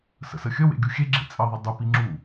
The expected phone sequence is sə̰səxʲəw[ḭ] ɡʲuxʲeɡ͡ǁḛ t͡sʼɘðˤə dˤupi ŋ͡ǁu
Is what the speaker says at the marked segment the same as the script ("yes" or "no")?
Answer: no